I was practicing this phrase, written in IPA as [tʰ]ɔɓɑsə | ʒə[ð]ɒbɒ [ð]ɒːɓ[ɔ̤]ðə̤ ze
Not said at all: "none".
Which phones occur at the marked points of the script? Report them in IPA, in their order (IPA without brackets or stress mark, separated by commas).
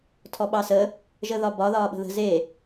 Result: tʰ, ð, ð, ə̤